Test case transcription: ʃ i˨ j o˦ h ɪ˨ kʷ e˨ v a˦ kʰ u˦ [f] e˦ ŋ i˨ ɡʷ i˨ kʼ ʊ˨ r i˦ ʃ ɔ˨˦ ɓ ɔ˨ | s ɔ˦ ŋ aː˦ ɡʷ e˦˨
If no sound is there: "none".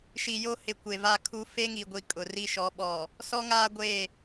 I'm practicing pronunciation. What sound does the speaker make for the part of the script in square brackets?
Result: f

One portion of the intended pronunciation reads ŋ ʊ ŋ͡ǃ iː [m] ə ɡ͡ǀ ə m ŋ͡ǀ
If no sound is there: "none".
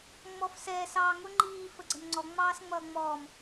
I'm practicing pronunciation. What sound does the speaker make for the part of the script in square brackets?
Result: f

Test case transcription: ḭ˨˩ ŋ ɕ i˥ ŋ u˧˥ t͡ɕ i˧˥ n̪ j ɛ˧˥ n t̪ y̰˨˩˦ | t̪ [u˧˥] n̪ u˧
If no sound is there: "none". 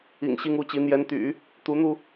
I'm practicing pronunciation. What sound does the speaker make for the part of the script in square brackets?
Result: u˧˥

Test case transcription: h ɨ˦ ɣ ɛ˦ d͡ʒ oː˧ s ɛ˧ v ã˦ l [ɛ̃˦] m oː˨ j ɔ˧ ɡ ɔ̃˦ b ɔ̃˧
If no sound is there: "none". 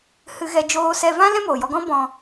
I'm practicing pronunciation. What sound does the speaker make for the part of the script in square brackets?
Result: ɛ̃˦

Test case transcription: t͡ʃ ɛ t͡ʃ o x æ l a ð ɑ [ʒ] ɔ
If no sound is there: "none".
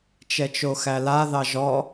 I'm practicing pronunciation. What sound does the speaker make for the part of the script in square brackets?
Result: ʒ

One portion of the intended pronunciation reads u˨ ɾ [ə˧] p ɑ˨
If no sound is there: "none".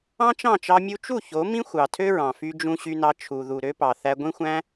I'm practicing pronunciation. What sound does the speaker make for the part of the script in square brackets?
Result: ø˧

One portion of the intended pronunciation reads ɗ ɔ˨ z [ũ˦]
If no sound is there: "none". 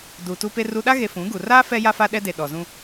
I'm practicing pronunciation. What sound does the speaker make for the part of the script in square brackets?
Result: ũ˦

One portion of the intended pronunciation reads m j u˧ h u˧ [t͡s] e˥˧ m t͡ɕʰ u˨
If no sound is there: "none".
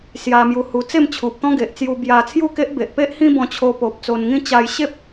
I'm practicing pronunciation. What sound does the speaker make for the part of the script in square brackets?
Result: t͡s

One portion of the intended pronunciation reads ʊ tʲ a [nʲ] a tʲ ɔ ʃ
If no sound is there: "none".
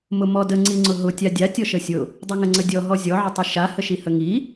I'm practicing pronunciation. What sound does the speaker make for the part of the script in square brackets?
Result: dʲ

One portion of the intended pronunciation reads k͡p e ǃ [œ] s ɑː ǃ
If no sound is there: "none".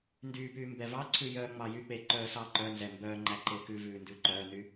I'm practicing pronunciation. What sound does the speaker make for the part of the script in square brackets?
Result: œː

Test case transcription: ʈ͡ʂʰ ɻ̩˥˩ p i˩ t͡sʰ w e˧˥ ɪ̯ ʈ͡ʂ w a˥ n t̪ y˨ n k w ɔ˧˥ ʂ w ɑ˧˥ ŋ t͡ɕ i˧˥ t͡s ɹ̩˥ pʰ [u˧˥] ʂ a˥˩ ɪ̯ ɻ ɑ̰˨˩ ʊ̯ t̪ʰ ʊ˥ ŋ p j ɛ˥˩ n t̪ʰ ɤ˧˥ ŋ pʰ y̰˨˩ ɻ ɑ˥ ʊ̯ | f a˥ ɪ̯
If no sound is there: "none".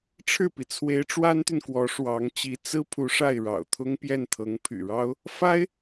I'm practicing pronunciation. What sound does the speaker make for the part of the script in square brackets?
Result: u˧˥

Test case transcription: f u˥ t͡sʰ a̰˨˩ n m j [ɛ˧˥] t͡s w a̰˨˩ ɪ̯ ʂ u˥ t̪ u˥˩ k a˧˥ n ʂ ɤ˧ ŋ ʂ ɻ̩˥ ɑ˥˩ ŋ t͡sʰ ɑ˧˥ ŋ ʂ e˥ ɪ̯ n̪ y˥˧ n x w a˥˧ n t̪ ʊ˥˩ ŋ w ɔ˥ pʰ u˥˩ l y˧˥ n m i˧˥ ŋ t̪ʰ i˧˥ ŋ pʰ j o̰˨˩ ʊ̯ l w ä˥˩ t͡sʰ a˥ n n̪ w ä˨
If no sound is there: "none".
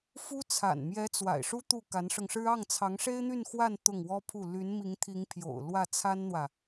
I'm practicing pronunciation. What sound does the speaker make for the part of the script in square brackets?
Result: ɛ˧˥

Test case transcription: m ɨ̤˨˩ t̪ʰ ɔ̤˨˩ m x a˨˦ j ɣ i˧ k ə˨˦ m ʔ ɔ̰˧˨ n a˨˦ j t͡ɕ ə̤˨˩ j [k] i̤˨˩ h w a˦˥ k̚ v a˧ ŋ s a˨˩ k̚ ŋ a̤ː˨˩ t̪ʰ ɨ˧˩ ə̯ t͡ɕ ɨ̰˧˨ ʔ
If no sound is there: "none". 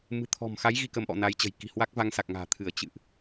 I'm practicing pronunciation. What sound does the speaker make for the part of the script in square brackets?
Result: k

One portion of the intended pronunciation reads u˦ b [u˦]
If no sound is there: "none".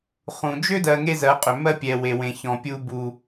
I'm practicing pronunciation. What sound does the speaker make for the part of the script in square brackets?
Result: u˦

